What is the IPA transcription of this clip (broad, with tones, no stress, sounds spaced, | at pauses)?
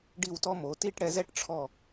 ɖ i˧˩ w t ɔ˧ m o˩˧ t i˥˧ ʈ ɽ ɛ˧ z ɛ˥˧ ʈ ʈ͡ʂʰ ɔ˧˩